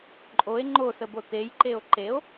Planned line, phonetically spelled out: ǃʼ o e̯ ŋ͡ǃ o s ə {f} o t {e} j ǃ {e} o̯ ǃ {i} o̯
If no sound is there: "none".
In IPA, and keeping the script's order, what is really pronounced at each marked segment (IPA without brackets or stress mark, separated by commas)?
b, e, e, e